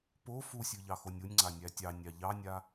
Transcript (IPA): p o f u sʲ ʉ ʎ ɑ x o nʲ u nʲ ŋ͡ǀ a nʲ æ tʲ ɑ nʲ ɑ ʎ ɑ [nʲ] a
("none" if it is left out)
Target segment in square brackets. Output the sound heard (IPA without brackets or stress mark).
nʲ